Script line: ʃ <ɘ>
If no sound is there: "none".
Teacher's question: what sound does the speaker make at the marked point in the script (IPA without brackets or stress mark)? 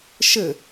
ɘ